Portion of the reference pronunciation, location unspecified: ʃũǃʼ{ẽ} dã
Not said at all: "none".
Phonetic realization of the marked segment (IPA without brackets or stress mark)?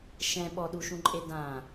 e